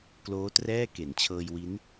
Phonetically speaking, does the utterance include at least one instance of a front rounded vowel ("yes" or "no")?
no